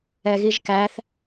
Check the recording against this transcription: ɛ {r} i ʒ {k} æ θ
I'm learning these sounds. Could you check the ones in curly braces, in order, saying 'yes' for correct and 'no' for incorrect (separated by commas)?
no, yes